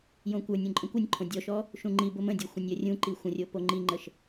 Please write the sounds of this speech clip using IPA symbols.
j õ kʷ ə˞ nʲ ũ ǃʼ ə̃ kʷ ə nʲ ǃʰ õ dʲ ɔ ʃ ɔ | ʃ ũ ŋ͡ǃ i b ʊ m ə̃ dʲ ɵ xʷ ə̃ nʲ j ə rʲ ũ ǃ i xʷ ə̃ rʲ o p o ŋ͡ǃ i ŋ͡ǃ ə ʃ

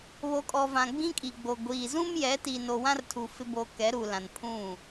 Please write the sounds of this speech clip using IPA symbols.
β o˨ kʼ ɔ˨ v ã˨ ɡ͡b ĩ˦ kʼ i˨ ɡ͡b o˨ ɡʷ iː˨ z ũ˦ m j ɛ˨˦ t i˨ n o˨ w ã˦ r tʰ u˨ f ɪ˦ b o˨ k ɛ˨˦ ɾ u˨ l ã˨ n pʰ ũ˦˨

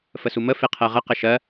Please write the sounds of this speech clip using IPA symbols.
f ə s u m ə f e qʰ ɜ ʁ ə q ɘ ʃ ɜ

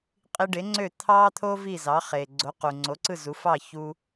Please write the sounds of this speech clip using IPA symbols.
qʼ i˧ ɖ e˩˥ ŋ͡ǀ ø˥˩ t̪ʰ ɑ˥ t̪ʰ o˥ v i˥˩ z ɑ˩˥ χ e˩ ɡ͡ǀ o˩˥ q u˩ ŋ͡ǀ o˩˥ ǀ ɯ˥˩ z u˩˥ f ɑ˥˩ ç u˧

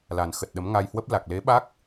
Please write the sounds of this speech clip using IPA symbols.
l a˨˩ n x ə˨˩ t̚ ɗ ə˨˦ m ŋ a˧ j h w ə˦˥ p̚ l a˨˩ k̚ l e˨˦ ɓ a˦˥ k̚

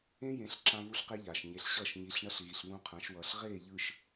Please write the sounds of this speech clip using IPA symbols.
ẽ˦ j ẽ˨˦ ɬ ǁ ã˦ v u˦ ɬ q e˦ ʎ aː˨ ʃ ɲ e˨ ɬ ɕ ʌː˦˨ ʃ ɲ i˨˦ ɬ ɳ ʌ˦ ɬ ɣ i˨ ɬ β ũ˦ qʰ ã˨˦ ʃ w ʌː˨ ɬ ʁ eː˦˨ ʎ ɯ˨ ʃ

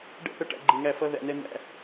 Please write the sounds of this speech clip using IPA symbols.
ɖ ɛ̰˦ θ ʌ˧ ʈ æ̰˧ ɡ͡ǃ i˨ ŋ æ˦˨ f ʌ˧ ð æ̰˨ n ɛ˧ n̪ æ̰˧

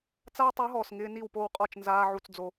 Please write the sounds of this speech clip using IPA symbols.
t͡s a˦ w tˤ u˨˦ ɦ ɔː˨ s ŋ ɪː˧ n i˦˨ w p o˦˨ w qʼ ɔ˦˨ t͡ʃ n z aː˦ ʕ u˧ t͡s d͡z o˧

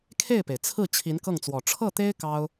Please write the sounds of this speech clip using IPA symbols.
kʰ e˥˩ ɪ̯ p e˩ ɪ̯ t͡sʰ ɹ̩˥˩ t͡ɕʰ i˧˥ n k ɤ˥˩ ŋ t͡s w ɔ˨˩ ʈ͡ʂʰ ɤ˥˩ t̪ e˥ ɪ̯ k ɑ˥ ʊ̯

